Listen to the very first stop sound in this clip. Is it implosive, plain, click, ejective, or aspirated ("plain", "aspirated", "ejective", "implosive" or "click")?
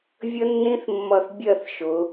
plain